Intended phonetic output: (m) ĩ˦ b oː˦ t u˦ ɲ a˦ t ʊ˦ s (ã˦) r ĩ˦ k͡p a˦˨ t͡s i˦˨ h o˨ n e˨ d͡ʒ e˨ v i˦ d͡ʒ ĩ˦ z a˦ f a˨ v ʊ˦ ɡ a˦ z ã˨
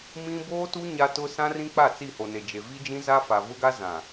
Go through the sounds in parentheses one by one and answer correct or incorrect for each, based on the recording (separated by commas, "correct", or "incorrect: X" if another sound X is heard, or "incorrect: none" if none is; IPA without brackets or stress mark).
correct, correct